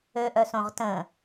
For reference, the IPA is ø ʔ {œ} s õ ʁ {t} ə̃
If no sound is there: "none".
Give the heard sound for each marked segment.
œ, t

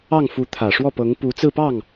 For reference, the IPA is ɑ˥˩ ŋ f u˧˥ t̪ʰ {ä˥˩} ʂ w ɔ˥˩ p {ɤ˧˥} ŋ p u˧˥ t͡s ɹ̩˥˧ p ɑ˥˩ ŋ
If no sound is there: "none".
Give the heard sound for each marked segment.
ä˨˩, ɤ˧˥

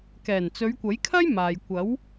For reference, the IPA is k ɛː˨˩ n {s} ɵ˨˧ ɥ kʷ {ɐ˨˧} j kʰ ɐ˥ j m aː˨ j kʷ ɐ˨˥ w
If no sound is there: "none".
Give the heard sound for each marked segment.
t͡s, ɐ˨˥

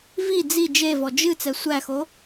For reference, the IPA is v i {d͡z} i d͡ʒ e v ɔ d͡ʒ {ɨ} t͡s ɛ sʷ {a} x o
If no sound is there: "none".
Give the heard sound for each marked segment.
d͡z, ɨ, æ

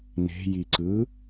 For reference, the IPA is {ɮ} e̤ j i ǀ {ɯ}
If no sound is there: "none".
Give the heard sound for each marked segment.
n, ɯ

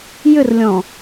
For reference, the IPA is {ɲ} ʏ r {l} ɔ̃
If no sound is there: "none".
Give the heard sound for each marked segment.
j, lʲ

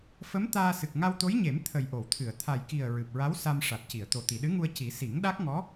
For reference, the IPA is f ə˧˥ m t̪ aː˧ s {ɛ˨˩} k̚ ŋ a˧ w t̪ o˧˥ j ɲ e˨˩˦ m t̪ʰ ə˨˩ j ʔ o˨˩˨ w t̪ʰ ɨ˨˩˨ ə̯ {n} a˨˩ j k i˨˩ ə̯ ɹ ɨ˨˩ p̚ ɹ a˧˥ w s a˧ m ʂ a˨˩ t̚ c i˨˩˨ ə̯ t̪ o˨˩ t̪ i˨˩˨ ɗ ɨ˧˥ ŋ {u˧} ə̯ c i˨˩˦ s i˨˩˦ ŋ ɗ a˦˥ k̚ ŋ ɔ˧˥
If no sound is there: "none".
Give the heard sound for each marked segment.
ɨ˨˩, t̪ʰ, u˧

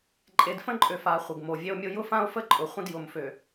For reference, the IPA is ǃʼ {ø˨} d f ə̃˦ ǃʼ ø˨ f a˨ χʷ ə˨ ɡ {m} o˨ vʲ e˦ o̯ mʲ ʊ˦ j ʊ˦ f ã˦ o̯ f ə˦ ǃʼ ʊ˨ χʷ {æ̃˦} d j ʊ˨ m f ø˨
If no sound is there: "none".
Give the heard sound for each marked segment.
e˨, m, ə̃˦

